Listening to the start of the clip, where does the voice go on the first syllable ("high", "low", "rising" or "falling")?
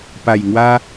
low